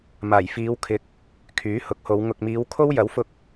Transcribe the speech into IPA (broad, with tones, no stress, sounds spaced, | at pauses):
m aː˨˩ j f iː˨˧ w kʰ ɪ˨˥ k̚ | kʰ yː˨˥ h ʊ˨˥ k̚ h o˨˧ w ŋ ʊ˨ k̚ m iː˨˧ w kʰ o˥ w j ɐ˨˥ w f ʊ˧ k̚